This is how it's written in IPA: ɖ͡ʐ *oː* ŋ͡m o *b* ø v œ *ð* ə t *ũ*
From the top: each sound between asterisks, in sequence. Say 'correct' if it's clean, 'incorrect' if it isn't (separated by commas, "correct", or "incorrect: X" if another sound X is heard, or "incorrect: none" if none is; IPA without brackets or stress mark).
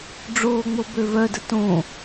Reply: correct, correct, incorrect: d, incorrect: õ